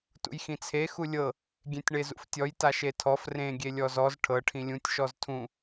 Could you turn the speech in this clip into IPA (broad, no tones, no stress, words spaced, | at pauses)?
tṵjxĩt͡sʰe xulʲɤ | ɡʲẽtʲɳezṵftʲɔj taʃetʰɔf rẽ ɡʲelʲɔzɔz ʈʰɤ ʈʰĩlʲũtʲ ʃɔztʰũ